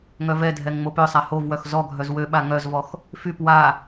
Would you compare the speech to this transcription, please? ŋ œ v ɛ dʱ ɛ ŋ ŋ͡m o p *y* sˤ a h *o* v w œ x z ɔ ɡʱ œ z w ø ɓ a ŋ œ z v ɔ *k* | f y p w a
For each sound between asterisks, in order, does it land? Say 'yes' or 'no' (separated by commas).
no, yes, no